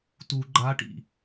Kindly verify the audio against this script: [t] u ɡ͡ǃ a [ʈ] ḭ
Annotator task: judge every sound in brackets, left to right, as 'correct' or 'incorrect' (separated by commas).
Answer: correct, correct